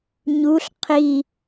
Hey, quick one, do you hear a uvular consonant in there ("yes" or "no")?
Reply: yes